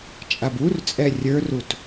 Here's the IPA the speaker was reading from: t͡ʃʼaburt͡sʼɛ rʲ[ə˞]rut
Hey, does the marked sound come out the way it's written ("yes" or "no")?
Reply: yes